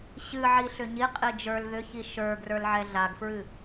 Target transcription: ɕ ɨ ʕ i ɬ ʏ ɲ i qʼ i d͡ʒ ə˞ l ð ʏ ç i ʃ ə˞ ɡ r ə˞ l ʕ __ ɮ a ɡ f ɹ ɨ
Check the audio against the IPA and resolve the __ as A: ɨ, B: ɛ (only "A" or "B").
B